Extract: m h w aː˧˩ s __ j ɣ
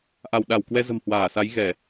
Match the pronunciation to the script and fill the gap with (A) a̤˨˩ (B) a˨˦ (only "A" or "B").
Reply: B